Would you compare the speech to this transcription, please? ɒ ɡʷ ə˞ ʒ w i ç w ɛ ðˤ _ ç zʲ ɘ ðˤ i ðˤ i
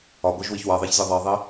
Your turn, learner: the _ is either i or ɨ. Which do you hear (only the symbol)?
i